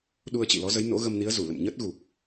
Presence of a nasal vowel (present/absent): absent